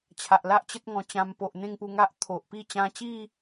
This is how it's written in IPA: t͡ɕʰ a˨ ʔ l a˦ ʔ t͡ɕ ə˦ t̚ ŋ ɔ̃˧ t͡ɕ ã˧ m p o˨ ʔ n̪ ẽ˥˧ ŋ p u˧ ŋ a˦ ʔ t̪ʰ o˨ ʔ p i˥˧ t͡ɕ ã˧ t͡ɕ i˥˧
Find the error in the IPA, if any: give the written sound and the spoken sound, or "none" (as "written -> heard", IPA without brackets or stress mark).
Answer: none